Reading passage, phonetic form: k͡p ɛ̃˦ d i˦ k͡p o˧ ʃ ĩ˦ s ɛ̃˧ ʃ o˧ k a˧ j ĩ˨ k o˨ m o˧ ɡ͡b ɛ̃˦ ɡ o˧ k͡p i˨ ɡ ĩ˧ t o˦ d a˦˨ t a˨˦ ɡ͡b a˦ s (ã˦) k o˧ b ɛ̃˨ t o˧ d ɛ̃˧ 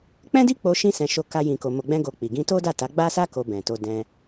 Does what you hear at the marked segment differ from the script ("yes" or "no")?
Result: yes